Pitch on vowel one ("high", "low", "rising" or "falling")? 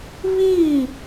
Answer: falling